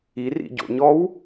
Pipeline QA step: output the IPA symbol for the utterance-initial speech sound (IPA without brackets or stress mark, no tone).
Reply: i